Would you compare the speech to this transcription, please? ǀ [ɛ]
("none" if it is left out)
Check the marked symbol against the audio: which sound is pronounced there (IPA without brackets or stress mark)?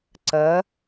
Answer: ɜ